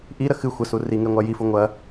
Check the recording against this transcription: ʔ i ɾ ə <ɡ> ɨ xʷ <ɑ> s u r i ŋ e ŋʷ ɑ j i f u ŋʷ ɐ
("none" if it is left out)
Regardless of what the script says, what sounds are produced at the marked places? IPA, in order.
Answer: x, ə

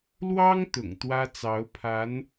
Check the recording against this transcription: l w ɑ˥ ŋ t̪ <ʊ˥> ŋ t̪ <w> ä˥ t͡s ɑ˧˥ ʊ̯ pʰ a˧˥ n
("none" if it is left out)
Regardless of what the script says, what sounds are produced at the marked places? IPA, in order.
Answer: ʊ̰˨˩, w

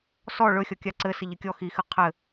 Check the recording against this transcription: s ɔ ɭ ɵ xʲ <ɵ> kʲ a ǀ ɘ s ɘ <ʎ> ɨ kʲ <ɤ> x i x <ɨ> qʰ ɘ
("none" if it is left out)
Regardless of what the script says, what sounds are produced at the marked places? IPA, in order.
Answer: ɔ, ʎ, ɔ, ɨ

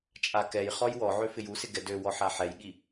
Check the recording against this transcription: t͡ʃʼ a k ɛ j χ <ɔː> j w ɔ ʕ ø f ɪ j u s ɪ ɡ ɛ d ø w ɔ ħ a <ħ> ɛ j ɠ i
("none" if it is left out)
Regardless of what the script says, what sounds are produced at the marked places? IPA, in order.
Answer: ɔ, ħ

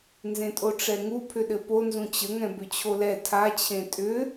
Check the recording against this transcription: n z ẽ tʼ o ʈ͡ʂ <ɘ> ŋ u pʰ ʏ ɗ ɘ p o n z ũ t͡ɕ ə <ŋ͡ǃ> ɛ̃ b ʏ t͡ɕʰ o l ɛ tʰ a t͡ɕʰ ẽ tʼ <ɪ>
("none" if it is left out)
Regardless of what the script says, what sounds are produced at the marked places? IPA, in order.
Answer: ɛ, ŋ, ʏ

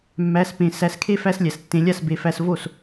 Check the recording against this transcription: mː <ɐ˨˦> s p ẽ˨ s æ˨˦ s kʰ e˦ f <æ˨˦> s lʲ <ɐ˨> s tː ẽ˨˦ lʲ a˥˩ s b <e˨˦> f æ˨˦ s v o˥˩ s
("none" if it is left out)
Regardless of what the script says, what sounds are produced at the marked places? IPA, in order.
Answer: æ˨˦, æ˦, æ˨, e˨

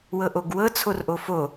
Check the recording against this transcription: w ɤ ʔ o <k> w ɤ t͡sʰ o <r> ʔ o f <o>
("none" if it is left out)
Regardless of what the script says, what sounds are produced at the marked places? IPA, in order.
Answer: ɡ, r, o

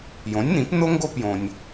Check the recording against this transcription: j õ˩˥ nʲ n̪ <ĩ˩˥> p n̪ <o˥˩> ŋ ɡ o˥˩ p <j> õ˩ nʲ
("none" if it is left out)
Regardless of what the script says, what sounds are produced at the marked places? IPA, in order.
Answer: ĩ˩˥, o˥, j

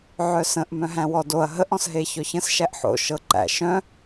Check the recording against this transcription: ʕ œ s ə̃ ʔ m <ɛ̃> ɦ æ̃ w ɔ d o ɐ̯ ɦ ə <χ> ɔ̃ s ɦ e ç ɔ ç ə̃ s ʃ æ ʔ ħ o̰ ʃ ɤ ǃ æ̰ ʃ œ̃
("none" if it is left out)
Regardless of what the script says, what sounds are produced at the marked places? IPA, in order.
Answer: œ̃, ʔ

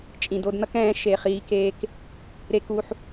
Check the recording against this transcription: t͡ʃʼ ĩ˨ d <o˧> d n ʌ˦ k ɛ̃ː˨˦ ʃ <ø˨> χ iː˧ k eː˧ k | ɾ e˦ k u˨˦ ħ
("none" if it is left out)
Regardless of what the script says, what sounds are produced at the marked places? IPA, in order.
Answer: o˧, e˨

